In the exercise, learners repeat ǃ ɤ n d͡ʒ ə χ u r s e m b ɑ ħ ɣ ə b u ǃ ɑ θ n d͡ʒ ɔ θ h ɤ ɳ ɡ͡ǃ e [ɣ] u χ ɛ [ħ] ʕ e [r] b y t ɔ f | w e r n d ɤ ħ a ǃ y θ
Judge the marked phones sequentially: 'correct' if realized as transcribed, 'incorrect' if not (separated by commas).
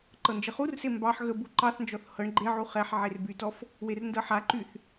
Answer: incorrect, correct, correct